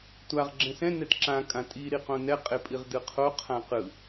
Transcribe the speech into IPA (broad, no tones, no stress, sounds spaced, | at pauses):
tʷ a ʁ ɡ͡ǁ ɛ̃ s ɛ̃ n ɛ d ǁ ã kʼ ã tʼ i ɾ i q õ n ɛ qʼ e pʼ i ʁ d ɯ qʰ o qʰ ã q ɯ